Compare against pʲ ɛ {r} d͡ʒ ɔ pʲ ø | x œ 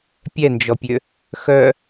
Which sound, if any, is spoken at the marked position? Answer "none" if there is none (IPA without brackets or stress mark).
n